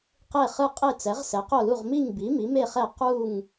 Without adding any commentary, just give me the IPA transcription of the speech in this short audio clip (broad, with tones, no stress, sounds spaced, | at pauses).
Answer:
q e˥˨ χ ɯ˥˨ qʼ e˥˨ t͡s ɛ˩˥ ʁ s ɛ˩˥ q o˥˨ l u˥˨ ʁ m i˥˨ ŋ b i˩˥ m i˩˥ m e˥˨ χ ɛ˥˨ q u˥˨ ŋ